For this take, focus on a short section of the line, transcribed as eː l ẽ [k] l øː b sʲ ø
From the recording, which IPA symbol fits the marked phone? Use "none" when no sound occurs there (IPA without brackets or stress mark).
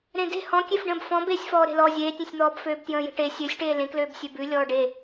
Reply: k